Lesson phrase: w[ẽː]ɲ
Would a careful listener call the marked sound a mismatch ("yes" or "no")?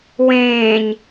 no